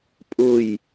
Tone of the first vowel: falling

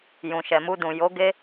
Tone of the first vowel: low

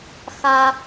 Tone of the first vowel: high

